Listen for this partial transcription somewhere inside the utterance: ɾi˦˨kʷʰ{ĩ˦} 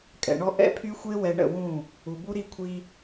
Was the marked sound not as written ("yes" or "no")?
yes